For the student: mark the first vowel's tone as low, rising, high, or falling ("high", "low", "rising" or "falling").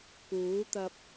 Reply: rising